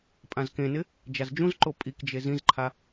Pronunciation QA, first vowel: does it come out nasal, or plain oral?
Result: nasal